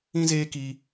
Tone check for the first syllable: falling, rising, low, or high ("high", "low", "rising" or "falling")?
high